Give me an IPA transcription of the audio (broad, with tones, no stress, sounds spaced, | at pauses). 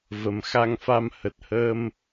v ə˨˩ m x a˧ ŋ f a˧ m h ə˨˩ t̚ h əː˧ m